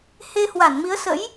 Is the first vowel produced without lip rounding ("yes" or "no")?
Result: yes